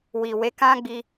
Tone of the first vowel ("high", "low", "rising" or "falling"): low